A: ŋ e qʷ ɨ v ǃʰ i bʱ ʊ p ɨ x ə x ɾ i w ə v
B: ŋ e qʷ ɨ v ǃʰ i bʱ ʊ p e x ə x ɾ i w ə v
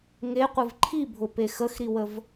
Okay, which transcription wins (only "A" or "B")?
B